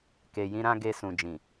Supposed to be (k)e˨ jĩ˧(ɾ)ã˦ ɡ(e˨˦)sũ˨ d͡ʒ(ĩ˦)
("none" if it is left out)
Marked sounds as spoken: k, ɾ, e˧, ĩ˨

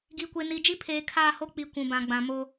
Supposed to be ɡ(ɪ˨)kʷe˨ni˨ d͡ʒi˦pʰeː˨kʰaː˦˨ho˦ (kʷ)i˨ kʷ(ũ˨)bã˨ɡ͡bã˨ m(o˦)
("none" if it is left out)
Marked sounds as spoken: i˨, k͡p, ũ˨, o˦

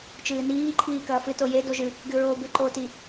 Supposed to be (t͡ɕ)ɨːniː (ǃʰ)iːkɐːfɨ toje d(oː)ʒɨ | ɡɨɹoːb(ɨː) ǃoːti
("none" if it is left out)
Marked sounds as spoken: t͡ʃ, ǃʰ, o, ɨ

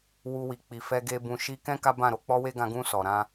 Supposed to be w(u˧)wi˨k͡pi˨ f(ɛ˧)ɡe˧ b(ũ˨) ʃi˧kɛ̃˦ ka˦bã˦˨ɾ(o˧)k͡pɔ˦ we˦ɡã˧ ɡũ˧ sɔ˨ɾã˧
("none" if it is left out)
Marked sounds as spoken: u˧, ɛ˧, ũ˨, o˧

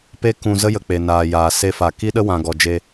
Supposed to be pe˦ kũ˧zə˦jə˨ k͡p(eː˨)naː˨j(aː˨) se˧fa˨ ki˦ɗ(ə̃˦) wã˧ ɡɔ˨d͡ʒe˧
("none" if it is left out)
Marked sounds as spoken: e˨, aː˨, ə˦

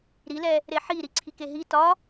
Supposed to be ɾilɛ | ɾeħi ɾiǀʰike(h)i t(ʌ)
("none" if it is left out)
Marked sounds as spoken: ɦ, ɒ

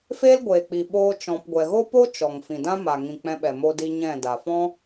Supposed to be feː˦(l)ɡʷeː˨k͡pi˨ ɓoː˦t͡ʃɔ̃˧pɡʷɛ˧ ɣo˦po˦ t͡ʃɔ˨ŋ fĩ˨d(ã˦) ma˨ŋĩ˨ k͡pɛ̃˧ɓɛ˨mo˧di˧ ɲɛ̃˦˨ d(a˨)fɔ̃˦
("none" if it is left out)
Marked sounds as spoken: l, ã˦, a˨

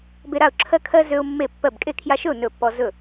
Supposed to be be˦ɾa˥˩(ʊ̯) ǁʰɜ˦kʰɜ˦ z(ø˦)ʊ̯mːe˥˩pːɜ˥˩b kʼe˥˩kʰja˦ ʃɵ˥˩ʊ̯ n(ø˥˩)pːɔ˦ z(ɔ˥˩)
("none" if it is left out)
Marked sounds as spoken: ʊ̯, ø˦, ɵ˥˩, ɵ˥˩

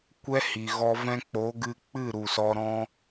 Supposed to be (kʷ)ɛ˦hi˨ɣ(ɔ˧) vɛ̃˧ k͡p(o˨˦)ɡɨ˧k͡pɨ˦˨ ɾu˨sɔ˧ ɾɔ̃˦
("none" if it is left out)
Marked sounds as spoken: kʷ, ɔ˧, o˨˦

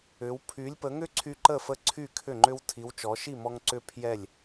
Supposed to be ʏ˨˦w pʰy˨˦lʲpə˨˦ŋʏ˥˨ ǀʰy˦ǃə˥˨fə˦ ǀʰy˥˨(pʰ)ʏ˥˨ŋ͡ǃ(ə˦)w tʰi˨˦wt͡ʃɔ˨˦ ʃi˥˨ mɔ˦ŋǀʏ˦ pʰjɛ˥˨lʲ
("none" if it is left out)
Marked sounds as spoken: kʰ, ʏ˦

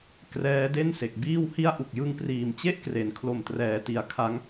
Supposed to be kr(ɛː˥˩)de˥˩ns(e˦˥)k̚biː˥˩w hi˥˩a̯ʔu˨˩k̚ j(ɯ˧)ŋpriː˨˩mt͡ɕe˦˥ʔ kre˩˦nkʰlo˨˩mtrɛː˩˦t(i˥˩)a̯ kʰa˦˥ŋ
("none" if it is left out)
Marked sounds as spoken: ɛː˦˥, e˨˩, ɯ˧, i˩˦

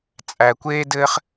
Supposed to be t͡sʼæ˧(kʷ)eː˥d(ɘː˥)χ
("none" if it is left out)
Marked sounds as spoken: kʷ, ɘː˥

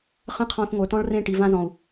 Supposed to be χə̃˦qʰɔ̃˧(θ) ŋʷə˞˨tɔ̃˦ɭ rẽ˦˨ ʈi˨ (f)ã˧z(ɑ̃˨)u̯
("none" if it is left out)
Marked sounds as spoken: θ, v, ɔ̃˨

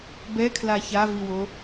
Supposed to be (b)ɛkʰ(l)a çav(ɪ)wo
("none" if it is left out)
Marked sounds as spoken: b, l, i

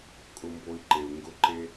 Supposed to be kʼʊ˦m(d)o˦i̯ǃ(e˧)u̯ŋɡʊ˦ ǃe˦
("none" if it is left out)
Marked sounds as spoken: b, e˧

